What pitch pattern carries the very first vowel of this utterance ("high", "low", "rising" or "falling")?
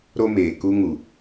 high